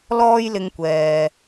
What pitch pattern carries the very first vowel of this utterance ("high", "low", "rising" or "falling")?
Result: high